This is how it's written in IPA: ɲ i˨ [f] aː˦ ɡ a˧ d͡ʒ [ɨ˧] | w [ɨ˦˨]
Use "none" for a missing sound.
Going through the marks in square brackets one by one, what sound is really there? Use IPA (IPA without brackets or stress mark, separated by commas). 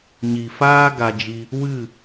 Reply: f, i˧, ɨ˦˨